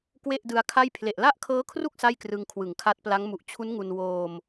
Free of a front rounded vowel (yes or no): yes